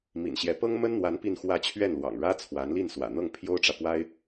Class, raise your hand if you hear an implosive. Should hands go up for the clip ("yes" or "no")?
no